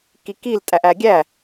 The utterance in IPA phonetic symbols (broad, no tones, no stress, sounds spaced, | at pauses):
k i k i l tʼ æ ʔ æ ɡʲ æ